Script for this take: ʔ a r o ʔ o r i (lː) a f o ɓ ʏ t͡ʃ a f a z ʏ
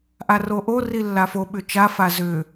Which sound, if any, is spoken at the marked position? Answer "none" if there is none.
lː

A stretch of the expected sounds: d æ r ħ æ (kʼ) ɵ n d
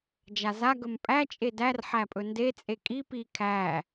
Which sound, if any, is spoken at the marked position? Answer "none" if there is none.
pʼ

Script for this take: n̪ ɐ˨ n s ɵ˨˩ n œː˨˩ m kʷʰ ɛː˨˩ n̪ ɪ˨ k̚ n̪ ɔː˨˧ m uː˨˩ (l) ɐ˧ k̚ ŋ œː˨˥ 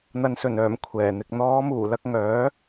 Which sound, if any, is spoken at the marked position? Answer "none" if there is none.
l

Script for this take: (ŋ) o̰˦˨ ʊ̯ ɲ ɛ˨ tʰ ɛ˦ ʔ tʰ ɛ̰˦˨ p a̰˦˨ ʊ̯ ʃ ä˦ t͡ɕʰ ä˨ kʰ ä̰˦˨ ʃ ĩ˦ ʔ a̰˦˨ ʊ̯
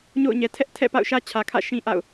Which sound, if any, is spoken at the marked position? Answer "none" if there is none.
ɲ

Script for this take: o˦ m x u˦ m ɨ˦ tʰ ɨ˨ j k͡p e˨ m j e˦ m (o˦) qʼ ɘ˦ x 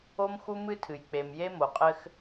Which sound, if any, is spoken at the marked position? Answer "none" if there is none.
o˨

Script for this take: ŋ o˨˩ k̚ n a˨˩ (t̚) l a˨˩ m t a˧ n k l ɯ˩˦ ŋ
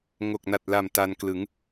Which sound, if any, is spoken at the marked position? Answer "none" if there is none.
t̚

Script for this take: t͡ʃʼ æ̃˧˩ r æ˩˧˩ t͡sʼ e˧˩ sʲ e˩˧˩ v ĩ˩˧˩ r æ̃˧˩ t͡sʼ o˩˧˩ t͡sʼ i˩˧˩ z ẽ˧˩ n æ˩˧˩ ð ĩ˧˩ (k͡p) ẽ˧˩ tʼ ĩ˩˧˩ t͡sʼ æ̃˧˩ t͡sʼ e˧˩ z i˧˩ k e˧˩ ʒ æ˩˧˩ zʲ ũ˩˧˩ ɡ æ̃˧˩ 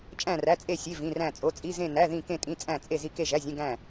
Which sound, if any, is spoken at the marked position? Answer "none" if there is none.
k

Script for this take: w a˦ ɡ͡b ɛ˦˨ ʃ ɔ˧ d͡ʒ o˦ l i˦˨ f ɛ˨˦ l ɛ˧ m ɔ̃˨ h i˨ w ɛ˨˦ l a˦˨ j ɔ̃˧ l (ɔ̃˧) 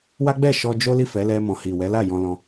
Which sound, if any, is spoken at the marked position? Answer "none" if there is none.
ɔ̃˧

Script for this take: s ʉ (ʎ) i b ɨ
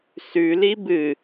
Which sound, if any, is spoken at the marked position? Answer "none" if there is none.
l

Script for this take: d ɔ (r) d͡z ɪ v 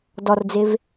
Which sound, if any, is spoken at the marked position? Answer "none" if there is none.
r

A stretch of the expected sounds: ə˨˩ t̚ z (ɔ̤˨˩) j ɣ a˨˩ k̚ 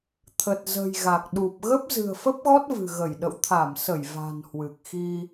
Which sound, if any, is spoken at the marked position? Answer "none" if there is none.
ə̤˨˩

